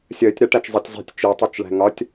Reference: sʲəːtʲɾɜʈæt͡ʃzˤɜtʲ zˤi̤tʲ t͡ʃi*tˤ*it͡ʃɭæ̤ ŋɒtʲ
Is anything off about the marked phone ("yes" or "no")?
no